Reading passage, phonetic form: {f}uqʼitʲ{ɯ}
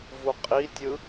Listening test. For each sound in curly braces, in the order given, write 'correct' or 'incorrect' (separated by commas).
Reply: incorrect, correct